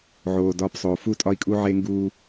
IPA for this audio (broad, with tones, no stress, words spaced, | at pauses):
ʕoː˨dɒː˦psˤoː˨ fu˦˨tʼɒ˦i̯kʼu˦ ʕe˦ŋɡuː˦